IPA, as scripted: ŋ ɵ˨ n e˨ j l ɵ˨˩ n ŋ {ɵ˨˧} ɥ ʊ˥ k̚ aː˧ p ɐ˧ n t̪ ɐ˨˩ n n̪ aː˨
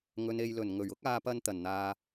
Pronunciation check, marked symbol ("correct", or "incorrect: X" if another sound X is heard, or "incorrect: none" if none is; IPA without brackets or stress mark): incorrect: ɵ˨˩